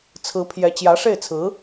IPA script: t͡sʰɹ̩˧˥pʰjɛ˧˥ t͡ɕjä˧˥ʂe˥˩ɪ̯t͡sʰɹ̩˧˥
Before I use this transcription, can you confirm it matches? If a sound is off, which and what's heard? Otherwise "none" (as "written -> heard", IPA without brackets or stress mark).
none